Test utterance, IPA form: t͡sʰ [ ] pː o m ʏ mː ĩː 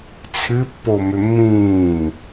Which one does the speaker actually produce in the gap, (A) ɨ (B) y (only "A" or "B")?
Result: A